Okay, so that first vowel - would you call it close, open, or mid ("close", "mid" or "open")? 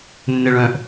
mid